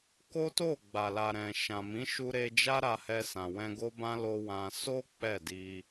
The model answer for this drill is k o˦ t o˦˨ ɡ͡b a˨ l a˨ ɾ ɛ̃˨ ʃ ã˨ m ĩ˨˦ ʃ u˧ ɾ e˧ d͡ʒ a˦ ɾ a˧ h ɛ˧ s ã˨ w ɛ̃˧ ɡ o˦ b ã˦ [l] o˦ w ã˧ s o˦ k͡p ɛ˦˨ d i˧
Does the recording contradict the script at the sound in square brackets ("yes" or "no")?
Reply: no